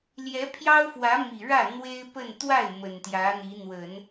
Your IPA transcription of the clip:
l j ɛ˧˥ pʰ j ɑ˥ ʊ̯ f w ä˧˥ m i˨˩ ɻ ä˥˩ n̪ w e˥ ɪ̯ p ə˥˧ n t̪ w a˥˩ ɪ̯ m ə˨˩ n t̪ j ä˧˥ n̪ i˧˥ n̪ w ə˨˩˦ n

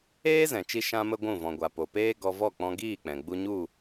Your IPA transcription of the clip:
eː˦ z ɛ̃˨ t͡ʃ i˧ ʃ ã˦ m ə˦ ɡʷ ũ˦˨ v ɔ̃˨ ɡʷ a˨ p o˨ p eː˦ ɡ ɔ˧ v ɔ˦˨ k͡p ɔ̃˧ ɡ iː˦˨ k͡p ɛ̃˨ ɡ͡b u˧ ɲ u˦˨

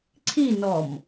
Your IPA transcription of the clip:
ǀʰ i n ɔ m

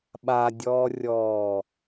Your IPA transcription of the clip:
ɓ a dʲ ɔː rʲ ɔː

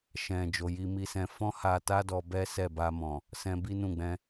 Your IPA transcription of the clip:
ʃ ɛ̃˨ d͡ʒ o˨ j i˧ m i˧ s ɛ̃˧ f ɔ̃˦ h a˧ t a˦ d ɔ˧ b ɛ˦ s ɛ˦˨ b a˧ m ɔ̃˨ | s ɛ̃˧ b i˦ n ũ˦˨ ɡ͡b ɛ̃˧

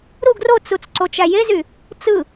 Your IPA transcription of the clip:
ɾ u ɡ r o t͡s u t͡s ǀ o t͡ʃ æ j e z y | t͡s ɯ

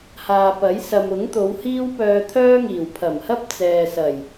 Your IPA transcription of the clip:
h aː˨ p ɐ˨˥ j s ɐ˨ m ʊ˨˥ ŋ t̪ o˨˧ w h iː˥ w p œː˧ t̪ʰ œː˥ ŋ iː˨˩ w pʰ ɐ˨˩ m h ɐ˥ p̚ t͡s ɛː˨ s ɐ˨˩ j

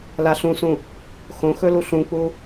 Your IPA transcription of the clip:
l a ɬ ũ s ũ | x õ x ɵ l u ɬ ũ k͡p u

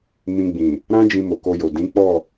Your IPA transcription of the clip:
m ĩ˧ ɡ͡b ĩ˨ | ɾ ã˦ d͡ʒ ĩ˧ m o˨ k o˧ j o˨ d ĩ˨˦ k͡p ɔ˦˨

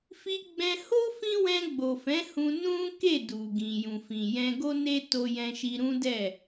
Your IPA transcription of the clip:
f i˧ ɡ͡b ɛ̃˧ h o˦ f ĩ˦ w ɛ̃˧ ɡ͡b o˨ f ɛ̃˨˦ h ũ˧ n ũ˦ k e˦˨ d u˨ ɡ ĩ˨ j ũ˨ f ĩ˨ j ɛ̃˧ ɡ o˦ n e˦ t o˧ j ɛ̃˧ ʃ i˧ ɾ ũ˦ d ɛ˦˨

